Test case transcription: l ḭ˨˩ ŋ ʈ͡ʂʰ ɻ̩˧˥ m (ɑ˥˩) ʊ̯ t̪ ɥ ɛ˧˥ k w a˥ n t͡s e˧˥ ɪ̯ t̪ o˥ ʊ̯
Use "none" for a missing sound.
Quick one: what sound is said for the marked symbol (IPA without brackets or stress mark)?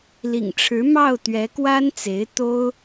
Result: ɑ˥˩